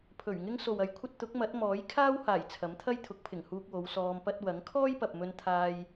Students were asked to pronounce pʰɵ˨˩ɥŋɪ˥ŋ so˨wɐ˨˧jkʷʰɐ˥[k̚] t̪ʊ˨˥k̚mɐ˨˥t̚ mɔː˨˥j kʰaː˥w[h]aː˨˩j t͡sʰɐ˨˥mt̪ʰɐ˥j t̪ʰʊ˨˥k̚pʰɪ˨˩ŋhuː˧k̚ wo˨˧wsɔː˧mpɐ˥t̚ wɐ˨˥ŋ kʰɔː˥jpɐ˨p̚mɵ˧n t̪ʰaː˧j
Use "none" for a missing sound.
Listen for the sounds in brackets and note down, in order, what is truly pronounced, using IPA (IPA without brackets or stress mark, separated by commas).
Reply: t̚, h